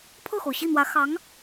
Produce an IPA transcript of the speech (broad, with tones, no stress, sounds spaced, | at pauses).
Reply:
pʰ ɤ˥˩ x o˩ ʊ̯ ɕ i˥˩ n̪ w ä˧˥ x ɑ˧˥ ŋ